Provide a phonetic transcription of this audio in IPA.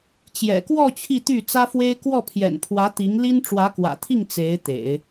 t͡ɕjɛ̰˨˩kwɔ˥˧ t͡ɕʰi˥˧t̪y˥˩t͡sä˥fwe˥ɪ̯ kwɔ˥˩pʰjɛ̰˨˩npʰwä˧˥ t̪i˧˥ŋli˥n ʈ͡ʂwä˧˥kwä̰˨˩t̪ʰi˥˩ŋ t͡se˧˥ɪ̯t̪ḛ˨˩˦ɪ̯

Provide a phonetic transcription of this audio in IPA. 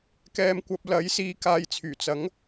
kɛː˧mkʷɐ˧p̚ lɐ˨˥jsiː˧ kaː˧jt͡sʰyː˨˩ t͡sɐ˨˥ŋ

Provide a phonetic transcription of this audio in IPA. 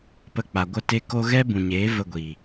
pə˧k͡pa˨ ɡʷə˧te˧ ko˧ ɣɛ˦bũ˨ɲeː˨˦ və˧ ɡʷi˨

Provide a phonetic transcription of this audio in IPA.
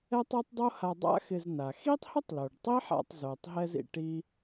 ɛ˥tˤe˥tˤdˤo˥ ha˧dˤa̰˥xɪ˧zna˩ xi˥tˤhʊ˥tˤ lo˩ɖtˤi˥ħa̰˧tˤ zo˩tˤ ɦɛ˥zḭ˧ʈi˥

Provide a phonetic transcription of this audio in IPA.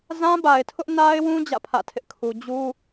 zã˦ba˨ɪ̯tʰʊ˦ʔ na˦ɪ̯wũ˦ d͡ʑä̰˦˨pʰä̰˦˨tʰɪ˦ʔ kʰu˦ d͡ʑu˦

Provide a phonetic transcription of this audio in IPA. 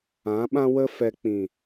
ã˨˦ɓã˦wə˦ fɛ˧k͡pĩ˨

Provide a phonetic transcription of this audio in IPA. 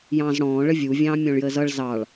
jɑ̃ːzɽɔ̃ː ɭəvʲu vʲɑ̃ːmʲɔ̃ɭjəːzʌɭ zɑɭ

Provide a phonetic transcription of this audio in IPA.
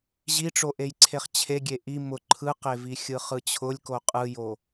ʑiʈ͡ʂoʔejǀʰeχ t͡ɕʰeɡʲe ʔi mʊ ǃʰɯqevi xʲɯχɯt͡ɕʰʊlʲko qʼɯjo

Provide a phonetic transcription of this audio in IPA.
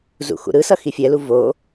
zṵxṵɾɯsʌ xifʲɛlu vo

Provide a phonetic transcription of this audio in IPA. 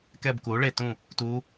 kɛ˦˨bku˨˥ ɭe˦˨tũ˦˨ | tu˦˥

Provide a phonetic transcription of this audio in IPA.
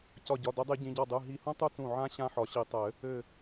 cɒ˧˩ɟɒ˩˧˩ dɘ˨˩˦dˤɨ˨˩˦ɟĩ˩˧˩ɟɔ˧˩ dˤɨ˩˧˩ ɦi˧˩hũ˦˥ tˤu˦˥t͡sũ˧˩ʕã˦˥ ɕã˦˥ħɒ˨˩˦ɕi˨˩˦tˤɘ˨˩˦ | ɘ˧˩

